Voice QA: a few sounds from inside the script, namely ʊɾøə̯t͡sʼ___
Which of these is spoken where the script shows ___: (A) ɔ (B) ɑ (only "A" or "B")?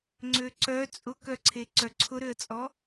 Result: A